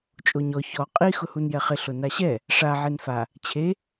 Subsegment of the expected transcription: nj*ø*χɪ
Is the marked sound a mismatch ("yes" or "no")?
yes